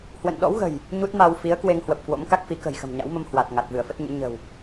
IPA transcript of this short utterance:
hwə̰˧˨nɗɔ̰˧˥wɣə̤˨˩j | ɲu˦˥t̚ma˧w fi˨˦ə̯kwe˧ŋhwə˨˩p̚ kwo̰˧˥mka˦˥k̚fi˨˦ kə̤˨˩jxə̤˨˩mɲa̰˧˥wmə˧m hwa˨˩t̚ ŋa˨˩t̚vɨ˧˩ə̯fə˦˥t̚ɲɨ̰˧˥ ɲə̤˨˩w

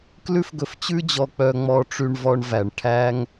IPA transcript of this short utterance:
klʉ˥fɡɵ˧ft͡ɕʉ˥d͡ʑɔ˧ k͡pœ˧ŋ͡mɔ˧ʈ͡ʂy˧ɳvɔ˧ɳ væ˩ɳʈʰæ˥ŋ

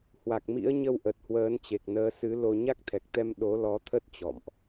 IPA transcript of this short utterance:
hwa˨˩k̚mḭ˧˥ə̯ɲə˧wʔə˨˩t̚ hwəː˨˦nt͡ɕe˨˩k̚nəː˨˦ sɨ˨˦lo˧ ɲa˦˥k̚t̪ʰɛ˨˩k̚t̪ɛ˧m ɗo˨˦lɔ˨˦t̪ʰə˦˥t̚ t͡ɕɔ̰˧˨mʔ

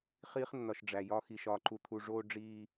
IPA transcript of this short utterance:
χiː˦χnːɒ˨ʃ ɖ͡ʐæ˨jɒ˦ xi˨ʃɒː˨ǃu˨t̪ʰu˨ ʐoː˦ ɖ͡ʐiː˦

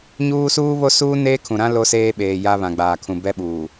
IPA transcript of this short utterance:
ɲuː˦ suː˦βo˦suː˦ neː˦kʰũ˨ɾã˦ lo˦seː˦ɓeː˨ jaː˦βã˨ɡ͡baː˨kʰũ˨ bɛ˦ɓuː˨

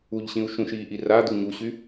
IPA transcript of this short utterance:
uʎɕĩu̯ ʃũʃiːʔi ra d̪uɲuɕy

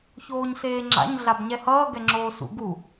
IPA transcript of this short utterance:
çoːɲseːŋ͡ǁa̰ɲ ɮabɲɛhʌː ɡɛŋ͡ǁoːsṵɡu

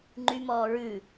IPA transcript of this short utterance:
ŋ͡ǃymɔː ɹʉ

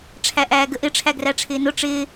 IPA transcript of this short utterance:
ʈ͡ʂʰæʔæːɡəʔɪ ʈ͡ʂʰæɡræʈ͡ʂʰɪːnʊ ʈ͡ʂɪː

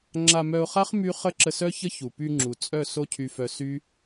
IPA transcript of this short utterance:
ŋ͡ǁa˧mœ˧ʊ̯χa˦χ my˦ χə˦ǁə˧sœ˦çə˦ çu˨py˧ŋ͡ǁu˨ t͡sʼœ˦˨ so˦cʰy˧fœ˧ sy˦

